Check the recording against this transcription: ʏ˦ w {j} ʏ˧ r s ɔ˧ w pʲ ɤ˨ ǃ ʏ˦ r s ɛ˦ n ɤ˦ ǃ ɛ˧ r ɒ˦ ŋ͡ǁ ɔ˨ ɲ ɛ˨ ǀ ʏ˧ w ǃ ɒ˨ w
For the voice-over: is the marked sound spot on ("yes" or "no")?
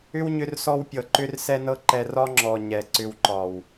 no